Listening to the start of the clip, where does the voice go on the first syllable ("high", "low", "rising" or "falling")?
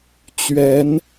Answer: rising